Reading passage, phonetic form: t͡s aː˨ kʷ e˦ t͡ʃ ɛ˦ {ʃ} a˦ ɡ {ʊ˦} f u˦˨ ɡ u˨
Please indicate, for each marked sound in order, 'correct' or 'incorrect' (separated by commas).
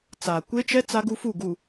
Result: incorrect, incorrect